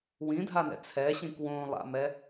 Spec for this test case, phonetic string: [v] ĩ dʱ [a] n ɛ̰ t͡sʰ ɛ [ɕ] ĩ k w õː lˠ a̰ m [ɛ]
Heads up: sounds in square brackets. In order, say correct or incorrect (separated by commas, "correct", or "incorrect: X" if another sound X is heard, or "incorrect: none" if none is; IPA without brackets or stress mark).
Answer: incorrect: w, correct, correct, correct